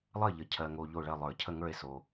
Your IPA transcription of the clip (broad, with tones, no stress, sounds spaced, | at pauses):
lˠ ɜ˥˨ ʎ ə˨ cʰ ɜ˨ ŋ o˨ ʎ o˥˨ ɭ ɜ˥˨ lˠ ə˞˨˩˦ cʰ ə˥˨ ŋ ə˞˥˨ e̯ s o˨